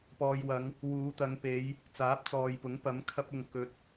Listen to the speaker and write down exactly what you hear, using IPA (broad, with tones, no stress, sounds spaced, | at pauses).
p ɔː˨ j w ɐ˨˧ ŋ | w uː˨˧ t̪ ɐ˨˧ ŋ p e˨˧ j | t͡s aː˨˥ p̚ t͡s ɔː˨ j p ʊ˨˥ ŋ p ɐ˨˥ m kʰ ɐ˧ p̚ ʊ˨ ŋ k ɵ˧ t̚